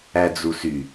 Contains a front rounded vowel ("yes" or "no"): yes